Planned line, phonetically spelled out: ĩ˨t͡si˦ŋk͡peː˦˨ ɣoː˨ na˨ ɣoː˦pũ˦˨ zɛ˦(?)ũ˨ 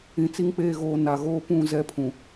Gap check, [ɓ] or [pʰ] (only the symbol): pʰ